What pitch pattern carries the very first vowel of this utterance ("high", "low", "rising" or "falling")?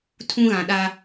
high